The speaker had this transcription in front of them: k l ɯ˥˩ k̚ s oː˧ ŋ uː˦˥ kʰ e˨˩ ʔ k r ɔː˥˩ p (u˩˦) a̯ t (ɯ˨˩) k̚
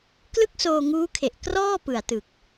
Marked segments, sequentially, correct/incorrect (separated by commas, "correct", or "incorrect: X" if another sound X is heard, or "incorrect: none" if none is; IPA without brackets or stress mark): incorrect: ɯ˩˦, correct